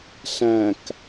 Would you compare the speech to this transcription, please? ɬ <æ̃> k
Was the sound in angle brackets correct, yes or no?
yes